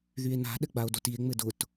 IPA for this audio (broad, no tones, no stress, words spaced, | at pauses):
ðye̯na̤ ɗɘɡ͡bao̯dotie̯ ŋ͡mɘdʊt